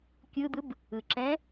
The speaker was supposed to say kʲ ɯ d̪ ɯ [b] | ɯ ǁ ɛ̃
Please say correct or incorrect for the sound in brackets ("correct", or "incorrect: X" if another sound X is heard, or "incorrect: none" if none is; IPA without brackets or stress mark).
correct